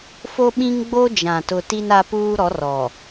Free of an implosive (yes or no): no